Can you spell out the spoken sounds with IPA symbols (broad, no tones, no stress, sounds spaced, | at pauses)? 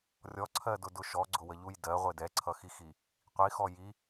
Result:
rʲ ɔ ǀʰ ɜ d ʊ d ʊ ʃ ɔ ɡ͡ǀ ʊ w ə ʎ u j d ɜ ʁʷ ɪ d ɛ ǀʰ ʌ x i x i | qʷ i x ɔ j i